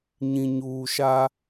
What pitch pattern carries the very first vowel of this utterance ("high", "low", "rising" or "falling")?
low